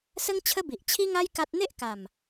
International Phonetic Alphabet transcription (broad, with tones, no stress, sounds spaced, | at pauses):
s ə˦ ŋ t͡ɕʰ ə˦ b i˨ ʔ t͡ɕʰ i˦ ŋ a˦ j k a˦ t̚ n̪ e˦ ʔ k a˨˩ m